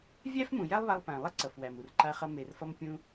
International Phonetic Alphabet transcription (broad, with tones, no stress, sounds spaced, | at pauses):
vʲ æ˥ f m ũ˩ j æ˥ lˠ β a˧ lˠ p æ̃˩ lˠ ɐ˥ ǀ ʌ˩ f w æ˩ m u˩ r ǃ a˧ χ ʌ˧ m e˩ r f ʌ˧ m pʲ ũ˧